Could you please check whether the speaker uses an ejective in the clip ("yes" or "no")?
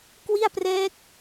no